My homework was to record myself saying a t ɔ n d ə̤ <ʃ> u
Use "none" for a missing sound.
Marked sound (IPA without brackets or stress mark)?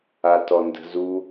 z